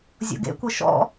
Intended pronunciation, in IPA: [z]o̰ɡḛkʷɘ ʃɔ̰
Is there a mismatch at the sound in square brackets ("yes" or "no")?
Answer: yes